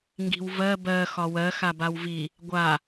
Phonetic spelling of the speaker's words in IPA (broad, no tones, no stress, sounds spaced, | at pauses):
ŋ ɡ i̤ w v ɜ b ɜ x ɒ w ɜ x a b a w v i | ɡʷ a